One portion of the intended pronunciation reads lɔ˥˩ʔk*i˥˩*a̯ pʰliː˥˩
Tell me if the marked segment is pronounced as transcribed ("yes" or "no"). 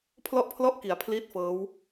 no